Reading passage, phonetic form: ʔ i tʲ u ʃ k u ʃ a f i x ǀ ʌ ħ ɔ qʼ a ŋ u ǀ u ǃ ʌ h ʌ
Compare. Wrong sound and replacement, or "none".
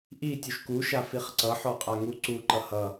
x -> χ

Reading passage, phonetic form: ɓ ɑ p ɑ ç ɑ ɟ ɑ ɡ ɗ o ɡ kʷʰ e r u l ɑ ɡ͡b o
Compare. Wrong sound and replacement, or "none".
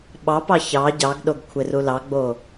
none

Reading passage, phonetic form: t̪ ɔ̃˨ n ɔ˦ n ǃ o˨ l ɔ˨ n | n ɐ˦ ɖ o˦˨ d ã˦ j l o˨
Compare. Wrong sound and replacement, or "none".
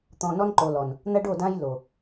none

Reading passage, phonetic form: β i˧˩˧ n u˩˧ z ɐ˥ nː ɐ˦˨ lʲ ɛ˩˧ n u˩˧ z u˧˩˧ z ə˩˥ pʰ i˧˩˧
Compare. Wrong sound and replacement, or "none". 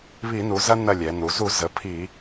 none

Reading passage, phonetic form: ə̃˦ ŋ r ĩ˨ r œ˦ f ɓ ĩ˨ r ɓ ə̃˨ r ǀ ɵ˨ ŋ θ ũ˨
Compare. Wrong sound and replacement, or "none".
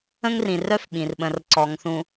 ɵ˨ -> ɔ˨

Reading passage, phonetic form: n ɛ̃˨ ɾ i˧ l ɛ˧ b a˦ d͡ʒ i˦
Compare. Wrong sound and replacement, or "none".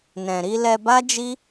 none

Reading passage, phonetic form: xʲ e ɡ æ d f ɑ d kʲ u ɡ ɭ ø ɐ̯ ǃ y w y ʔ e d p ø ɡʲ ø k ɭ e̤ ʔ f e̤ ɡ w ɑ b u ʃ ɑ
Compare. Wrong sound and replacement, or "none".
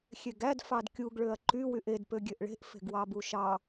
k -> ʔ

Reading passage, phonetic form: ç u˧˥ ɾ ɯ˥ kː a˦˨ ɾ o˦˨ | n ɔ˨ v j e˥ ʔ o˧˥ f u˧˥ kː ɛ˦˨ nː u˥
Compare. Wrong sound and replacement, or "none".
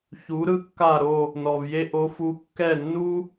none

